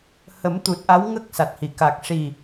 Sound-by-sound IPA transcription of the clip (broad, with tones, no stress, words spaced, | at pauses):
hə˨˩˦mt̪u˨˩t̚ ʔa˧˥wŋə˦˥k̚ sa˨˩t̚hi˨˩˨ ka˨˩k̚ ʂi˨˩